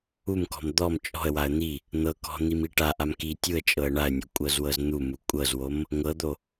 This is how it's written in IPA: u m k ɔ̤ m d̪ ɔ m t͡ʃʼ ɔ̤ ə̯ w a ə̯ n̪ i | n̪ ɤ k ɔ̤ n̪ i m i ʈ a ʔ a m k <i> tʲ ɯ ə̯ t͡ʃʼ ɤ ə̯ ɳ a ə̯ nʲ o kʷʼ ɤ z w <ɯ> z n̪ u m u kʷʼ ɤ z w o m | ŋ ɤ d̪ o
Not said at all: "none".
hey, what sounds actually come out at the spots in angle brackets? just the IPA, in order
i, ɤ

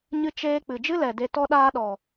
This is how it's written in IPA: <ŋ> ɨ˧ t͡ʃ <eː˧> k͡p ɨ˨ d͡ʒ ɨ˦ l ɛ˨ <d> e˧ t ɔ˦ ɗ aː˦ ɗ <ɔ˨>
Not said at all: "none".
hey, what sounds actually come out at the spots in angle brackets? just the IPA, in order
ɲ, eː˧, d, ɔ˨

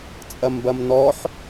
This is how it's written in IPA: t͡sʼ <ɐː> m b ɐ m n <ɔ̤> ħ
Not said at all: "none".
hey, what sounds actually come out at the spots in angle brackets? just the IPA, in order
ɐ, ɔ

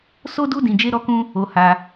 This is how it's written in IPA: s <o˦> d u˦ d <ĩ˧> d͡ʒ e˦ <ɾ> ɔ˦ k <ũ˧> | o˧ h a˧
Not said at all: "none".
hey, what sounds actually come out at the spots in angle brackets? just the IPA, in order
o˦, ĩ˧, ɾ, ũ˦

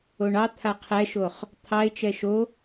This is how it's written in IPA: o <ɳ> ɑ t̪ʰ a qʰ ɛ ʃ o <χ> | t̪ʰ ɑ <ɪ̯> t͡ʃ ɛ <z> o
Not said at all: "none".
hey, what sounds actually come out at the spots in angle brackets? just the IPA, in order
ɳ, χ, ɪ̯, ʃ

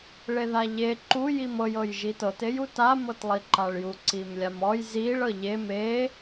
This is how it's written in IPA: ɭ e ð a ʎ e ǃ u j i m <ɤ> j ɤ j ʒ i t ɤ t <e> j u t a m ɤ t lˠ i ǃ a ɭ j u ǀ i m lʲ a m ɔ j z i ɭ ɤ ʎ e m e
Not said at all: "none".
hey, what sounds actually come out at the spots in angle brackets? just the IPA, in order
ɤ, e

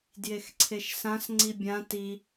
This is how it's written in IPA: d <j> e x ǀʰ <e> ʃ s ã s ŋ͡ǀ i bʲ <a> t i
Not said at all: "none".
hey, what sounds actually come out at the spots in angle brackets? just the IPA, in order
j, e, ã

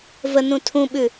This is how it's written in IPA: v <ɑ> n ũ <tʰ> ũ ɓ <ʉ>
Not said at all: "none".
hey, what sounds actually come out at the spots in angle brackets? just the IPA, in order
ə, tʰ, ʉ

